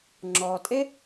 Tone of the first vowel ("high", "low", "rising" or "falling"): low